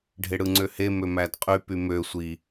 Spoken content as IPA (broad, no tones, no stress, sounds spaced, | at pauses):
ɖʱ e ɽ ɯ ŋ͡ǀ ø h e m ø m æ d qʼ y p y m ø sʷ i